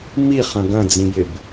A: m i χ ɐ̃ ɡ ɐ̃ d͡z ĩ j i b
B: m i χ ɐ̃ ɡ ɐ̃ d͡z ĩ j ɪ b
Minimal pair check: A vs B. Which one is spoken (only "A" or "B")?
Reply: B